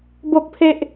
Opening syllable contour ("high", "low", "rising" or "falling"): high